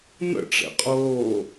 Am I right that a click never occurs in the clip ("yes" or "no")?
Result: yes